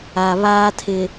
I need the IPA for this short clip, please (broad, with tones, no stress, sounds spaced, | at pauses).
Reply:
a˨ β aː˦ tʰ ɪ˨